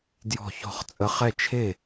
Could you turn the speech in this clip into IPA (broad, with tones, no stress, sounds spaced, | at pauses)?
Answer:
d j ɔ̤˧˩ ç ɔ̤˧˩ χ t͡sʼ ə˨˦ χ ɛ˥˩ t͡ʃʰ e˥˩